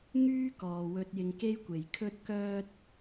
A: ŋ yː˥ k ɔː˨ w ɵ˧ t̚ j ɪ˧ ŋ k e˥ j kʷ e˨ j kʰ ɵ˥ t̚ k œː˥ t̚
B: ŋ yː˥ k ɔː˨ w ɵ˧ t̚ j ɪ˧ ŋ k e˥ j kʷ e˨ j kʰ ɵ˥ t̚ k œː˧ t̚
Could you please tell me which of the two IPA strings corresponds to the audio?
A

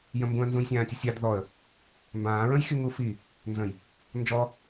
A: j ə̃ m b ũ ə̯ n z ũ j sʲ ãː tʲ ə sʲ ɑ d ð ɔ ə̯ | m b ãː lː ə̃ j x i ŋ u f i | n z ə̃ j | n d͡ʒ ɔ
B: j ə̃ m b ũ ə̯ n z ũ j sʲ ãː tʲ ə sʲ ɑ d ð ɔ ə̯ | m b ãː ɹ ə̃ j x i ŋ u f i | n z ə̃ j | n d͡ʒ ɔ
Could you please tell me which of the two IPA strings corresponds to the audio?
B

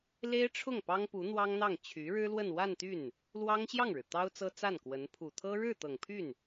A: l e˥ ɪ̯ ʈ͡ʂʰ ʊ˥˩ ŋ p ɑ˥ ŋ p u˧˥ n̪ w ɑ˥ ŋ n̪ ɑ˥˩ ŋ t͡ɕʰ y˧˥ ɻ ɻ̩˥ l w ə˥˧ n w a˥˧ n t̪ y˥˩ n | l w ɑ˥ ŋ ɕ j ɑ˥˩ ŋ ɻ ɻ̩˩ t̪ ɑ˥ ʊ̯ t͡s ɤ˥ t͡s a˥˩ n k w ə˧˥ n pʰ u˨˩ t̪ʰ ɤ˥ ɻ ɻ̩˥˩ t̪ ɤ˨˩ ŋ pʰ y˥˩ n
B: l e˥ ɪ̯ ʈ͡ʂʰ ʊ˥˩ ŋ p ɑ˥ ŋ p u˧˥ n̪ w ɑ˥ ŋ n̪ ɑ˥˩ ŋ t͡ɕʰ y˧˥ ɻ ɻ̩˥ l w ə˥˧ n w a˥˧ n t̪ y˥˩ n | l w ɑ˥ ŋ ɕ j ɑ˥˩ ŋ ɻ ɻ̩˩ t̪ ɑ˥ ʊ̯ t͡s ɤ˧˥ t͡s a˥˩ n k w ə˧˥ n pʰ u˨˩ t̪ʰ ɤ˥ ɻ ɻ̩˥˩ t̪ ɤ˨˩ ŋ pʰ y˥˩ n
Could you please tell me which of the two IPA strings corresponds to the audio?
A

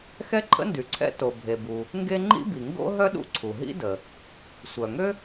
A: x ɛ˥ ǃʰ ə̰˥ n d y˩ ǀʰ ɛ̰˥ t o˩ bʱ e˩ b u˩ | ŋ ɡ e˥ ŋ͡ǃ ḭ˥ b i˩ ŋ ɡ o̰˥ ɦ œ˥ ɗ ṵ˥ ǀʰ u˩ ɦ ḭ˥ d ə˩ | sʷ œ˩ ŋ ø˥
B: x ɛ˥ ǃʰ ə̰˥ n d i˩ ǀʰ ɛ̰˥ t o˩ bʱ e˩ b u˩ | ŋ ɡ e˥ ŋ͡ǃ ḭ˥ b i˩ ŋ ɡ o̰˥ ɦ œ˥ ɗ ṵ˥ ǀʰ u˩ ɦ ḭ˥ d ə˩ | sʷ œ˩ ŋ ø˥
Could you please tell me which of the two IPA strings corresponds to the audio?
A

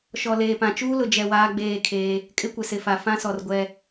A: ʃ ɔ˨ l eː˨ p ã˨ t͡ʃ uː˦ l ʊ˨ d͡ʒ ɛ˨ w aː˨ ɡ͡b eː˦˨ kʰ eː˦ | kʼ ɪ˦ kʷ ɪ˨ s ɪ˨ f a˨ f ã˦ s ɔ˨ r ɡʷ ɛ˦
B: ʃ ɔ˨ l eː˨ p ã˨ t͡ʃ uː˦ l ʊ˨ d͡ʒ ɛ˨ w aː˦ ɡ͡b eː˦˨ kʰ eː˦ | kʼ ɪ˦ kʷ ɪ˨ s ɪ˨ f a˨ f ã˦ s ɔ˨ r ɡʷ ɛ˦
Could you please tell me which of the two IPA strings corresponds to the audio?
B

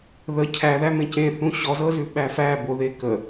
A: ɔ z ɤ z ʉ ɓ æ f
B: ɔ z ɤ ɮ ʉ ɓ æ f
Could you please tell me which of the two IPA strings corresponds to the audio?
A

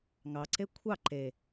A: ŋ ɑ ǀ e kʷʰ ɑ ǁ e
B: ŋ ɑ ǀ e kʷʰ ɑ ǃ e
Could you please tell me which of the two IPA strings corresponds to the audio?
B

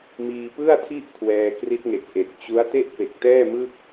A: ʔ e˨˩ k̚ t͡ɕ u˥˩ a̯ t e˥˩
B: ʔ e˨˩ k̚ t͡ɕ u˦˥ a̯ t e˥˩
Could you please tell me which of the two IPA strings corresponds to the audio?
B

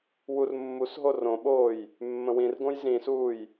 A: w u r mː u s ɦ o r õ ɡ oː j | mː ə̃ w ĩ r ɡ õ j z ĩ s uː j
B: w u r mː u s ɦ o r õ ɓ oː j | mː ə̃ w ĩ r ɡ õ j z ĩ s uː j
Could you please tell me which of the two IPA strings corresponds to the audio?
B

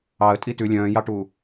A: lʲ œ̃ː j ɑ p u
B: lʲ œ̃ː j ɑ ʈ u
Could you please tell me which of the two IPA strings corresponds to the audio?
B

